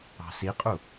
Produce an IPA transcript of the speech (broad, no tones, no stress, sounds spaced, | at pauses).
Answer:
ɑ̤ s i qʼ u